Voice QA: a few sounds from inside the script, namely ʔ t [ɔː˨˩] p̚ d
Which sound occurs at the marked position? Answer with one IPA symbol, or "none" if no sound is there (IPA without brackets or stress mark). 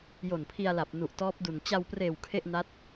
ɔː˦˥